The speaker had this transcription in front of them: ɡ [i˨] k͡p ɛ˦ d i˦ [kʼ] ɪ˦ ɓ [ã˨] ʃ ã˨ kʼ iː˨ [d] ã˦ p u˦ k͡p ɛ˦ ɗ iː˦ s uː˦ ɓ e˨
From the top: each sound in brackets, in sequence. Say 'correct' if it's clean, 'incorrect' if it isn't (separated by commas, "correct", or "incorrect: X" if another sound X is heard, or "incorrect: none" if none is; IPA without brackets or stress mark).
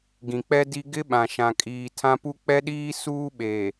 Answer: incorrect: ĩ˨, incorrect: ɡ, correct, incorrect: tʰ